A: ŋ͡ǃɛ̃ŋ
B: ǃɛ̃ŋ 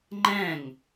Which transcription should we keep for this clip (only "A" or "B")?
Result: A